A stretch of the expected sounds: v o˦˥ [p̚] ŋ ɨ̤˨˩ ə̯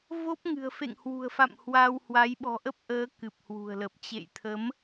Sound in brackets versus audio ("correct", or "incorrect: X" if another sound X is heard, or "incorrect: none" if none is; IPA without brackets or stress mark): correct